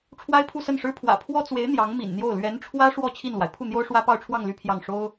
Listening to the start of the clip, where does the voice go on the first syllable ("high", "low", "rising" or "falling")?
high